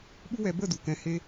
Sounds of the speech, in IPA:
ɓ u˦ w ɛ˧ b ə˦˨ d u˨ k ɛ̃˨˦ h e˧

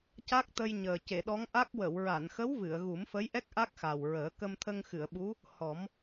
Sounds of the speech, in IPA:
c a˦˥ k̚ t̪ ə˧ j ɲ əː˨˩ c e˨˩˨ ɗ ɔ˧˥ ŋ ʔ a˦˥ k̚ w ə˨˩˨ w ɹ a˨˩˨ n x ə˧˥ w v ɨ˨˩˨ ə̯ ɣ u˨˩˦ m f ə˧˥ j ʔ ɛ˦˥ k̚ ʔ a˦˥ k̚ x a˨˩ w ɹ əː˨˩˦ k ə˧ m t̪ʰ ə˧ ŋ x ɨ˨˩˨ ə̯ ɓ u˧˥ | h ɔ˨˩˦ m

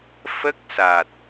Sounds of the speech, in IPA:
f ə˦˥ k̚ s aː˨˩ t̚

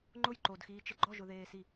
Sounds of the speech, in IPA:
ŋ͡ǃ ʊ j ǃ o d x iː t͡ʃ ɪ ɡ͡ǃ ɔ ʒ ʊ ð eː s i

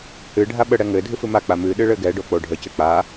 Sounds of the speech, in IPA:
h ɨ ɖʱ a ɓ ə ɽ ɛ ŋ ɘ dʱ ɨ f ɨ m a k͡p a m ɨ ɗ ɨ ɭ ɘ ɡ ɛ ɖ o k͡p o ɖʱ ə c ɘ k͡p a

